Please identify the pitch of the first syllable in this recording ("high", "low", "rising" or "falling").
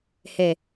low